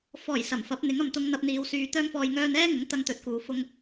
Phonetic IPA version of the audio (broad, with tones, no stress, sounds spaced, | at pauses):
f ɔː˨˩ j s ɐ˨˩ m f ɐ˨˥ p̚ n̪ ɪ˨˥ ŋ ɐ˨ m t̪ ʊ˧ ŋ n̪ ɐ˧ p̚ n̪ iː˨˧ w s yː˨ t̪ œː˧ ŋ f ɔː˨ j ŋ œː˧ n ɛː˥ ŋ ʊ˨˥ ŋ t̪ ɐ˨ ŋ t̪ ɵ˨˥ t̚ k uː˨ f ʊ˧ ŋ